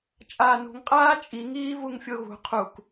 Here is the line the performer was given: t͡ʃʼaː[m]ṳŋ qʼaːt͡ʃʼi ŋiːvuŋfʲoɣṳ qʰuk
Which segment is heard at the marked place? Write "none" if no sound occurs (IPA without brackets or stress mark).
n